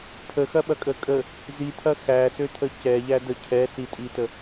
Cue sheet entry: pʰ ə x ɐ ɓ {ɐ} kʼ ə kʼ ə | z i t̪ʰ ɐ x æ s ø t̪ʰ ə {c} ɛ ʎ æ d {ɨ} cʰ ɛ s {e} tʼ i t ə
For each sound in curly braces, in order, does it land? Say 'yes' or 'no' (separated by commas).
yes, yes, no, no